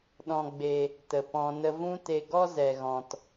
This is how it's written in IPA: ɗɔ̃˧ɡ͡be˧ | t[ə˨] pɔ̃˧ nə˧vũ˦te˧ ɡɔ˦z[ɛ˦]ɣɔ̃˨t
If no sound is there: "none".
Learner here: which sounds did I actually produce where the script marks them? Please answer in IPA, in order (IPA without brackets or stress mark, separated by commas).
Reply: ə˨, ɛ˨